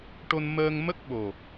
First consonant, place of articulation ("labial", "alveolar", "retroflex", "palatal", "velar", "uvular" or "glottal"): retroflex